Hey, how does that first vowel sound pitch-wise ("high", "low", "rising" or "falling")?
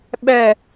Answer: falling